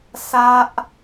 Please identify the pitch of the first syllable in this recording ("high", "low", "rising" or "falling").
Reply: high